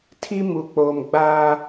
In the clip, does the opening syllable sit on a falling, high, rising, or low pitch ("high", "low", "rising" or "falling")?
high